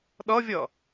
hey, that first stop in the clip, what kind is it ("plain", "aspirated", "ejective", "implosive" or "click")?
implosive